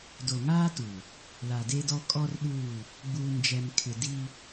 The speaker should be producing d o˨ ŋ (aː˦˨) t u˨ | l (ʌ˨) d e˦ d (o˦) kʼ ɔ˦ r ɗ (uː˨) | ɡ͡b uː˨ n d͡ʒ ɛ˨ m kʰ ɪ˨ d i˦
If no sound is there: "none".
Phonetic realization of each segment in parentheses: aː˦, a˨, ɔ˦, uː˦˨

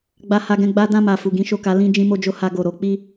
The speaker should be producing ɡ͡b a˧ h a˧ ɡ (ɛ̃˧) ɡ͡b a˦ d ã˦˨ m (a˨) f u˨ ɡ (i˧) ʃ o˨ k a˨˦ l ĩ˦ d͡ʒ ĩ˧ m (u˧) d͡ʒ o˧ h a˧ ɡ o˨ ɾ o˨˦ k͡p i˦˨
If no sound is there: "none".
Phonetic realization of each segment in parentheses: ɛ̃˧, a˨, ĩ˧, o˧

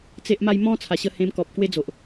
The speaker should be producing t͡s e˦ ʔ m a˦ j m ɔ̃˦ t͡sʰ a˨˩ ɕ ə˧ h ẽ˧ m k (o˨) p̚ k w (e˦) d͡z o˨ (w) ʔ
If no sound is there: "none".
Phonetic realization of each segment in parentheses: ɔ˨, e˦, none

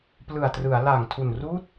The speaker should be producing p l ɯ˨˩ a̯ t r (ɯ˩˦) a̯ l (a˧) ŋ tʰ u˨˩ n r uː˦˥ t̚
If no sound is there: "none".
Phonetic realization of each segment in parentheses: ɯ˩˦, a˨˩

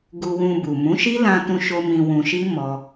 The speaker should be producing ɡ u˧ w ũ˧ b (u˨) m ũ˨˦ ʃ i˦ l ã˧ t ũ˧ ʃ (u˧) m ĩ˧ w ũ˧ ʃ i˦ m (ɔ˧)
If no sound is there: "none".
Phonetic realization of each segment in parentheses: u˨, o˧, ɔ˧

